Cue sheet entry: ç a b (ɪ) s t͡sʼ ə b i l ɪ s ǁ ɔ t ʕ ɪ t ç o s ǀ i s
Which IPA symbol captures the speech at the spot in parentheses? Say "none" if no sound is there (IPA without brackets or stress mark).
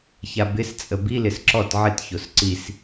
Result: ɪ